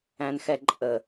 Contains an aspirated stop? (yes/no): no